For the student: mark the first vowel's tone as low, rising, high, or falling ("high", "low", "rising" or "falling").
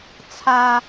high